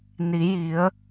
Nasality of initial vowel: oral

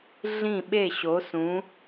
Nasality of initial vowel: nasal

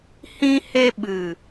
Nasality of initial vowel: nasal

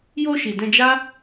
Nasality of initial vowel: oral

